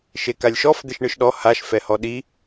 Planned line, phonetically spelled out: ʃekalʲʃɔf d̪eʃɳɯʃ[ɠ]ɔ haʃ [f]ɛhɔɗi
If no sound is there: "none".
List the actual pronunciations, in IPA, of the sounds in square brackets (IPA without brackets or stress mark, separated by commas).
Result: ɗ, f